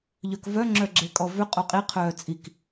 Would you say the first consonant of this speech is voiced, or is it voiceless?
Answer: voiced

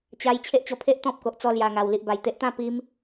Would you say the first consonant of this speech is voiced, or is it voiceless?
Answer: voiceless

